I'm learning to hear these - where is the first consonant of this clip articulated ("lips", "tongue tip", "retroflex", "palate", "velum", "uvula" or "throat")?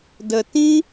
tongue tip